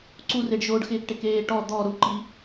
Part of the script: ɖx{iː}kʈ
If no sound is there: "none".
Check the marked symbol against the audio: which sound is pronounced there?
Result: ɪː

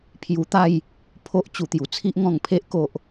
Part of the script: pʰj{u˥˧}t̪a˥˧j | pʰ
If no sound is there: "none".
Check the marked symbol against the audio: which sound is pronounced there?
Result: u˧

